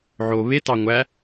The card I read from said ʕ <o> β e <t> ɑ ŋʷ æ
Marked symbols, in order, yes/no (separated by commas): yes, yes